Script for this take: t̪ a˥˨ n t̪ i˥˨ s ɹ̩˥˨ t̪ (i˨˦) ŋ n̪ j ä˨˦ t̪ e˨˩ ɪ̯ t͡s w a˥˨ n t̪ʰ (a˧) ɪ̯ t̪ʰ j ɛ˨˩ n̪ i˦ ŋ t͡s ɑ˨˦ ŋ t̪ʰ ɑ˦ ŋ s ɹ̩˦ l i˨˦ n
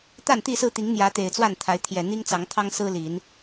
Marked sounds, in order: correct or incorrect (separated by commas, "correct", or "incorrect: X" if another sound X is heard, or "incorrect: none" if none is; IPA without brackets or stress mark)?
correct, incorrect: a˨˦